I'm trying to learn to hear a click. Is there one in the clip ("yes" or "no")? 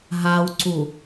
yes